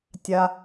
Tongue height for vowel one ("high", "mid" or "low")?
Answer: low